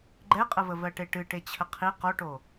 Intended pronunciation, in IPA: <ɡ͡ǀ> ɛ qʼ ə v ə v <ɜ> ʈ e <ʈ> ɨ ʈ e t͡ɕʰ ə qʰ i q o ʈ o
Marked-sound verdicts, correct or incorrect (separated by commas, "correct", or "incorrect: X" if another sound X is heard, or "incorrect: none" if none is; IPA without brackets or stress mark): incorrect: ɡ͡ǃ, correct, correct